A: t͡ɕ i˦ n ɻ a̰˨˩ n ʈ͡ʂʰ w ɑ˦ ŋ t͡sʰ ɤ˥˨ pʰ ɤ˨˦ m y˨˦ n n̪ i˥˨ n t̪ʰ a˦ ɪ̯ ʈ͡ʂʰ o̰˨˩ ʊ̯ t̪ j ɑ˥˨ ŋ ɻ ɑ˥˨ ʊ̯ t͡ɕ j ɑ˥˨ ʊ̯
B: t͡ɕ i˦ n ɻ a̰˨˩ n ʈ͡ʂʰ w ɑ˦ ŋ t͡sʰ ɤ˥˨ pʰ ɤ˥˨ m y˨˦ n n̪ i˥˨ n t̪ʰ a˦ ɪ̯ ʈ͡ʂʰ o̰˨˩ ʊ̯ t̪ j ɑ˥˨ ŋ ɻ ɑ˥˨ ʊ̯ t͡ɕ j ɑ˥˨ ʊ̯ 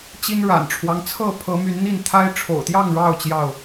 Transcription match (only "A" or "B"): A